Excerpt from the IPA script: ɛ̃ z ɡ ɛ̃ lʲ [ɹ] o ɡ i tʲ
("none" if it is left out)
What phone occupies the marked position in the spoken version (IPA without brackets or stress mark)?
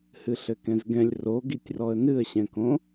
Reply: r